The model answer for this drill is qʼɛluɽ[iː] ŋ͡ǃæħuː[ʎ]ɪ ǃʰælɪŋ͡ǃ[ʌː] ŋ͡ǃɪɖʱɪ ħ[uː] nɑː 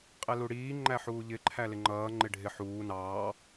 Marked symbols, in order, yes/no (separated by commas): yes, yes, yes, yes